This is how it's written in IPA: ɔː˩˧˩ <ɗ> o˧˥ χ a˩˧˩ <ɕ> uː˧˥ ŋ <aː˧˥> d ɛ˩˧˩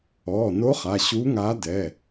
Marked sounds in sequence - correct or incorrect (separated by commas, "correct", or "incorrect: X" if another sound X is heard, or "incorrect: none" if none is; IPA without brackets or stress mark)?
incorrect: n, correct, correct